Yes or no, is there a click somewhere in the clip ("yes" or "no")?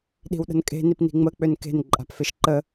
yes